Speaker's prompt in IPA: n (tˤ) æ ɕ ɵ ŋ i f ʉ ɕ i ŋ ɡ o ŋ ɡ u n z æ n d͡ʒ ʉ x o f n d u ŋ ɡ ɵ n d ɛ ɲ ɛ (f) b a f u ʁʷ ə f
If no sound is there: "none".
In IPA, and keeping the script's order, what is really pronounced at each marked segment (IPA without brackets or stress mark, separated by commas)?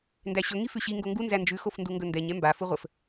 d, m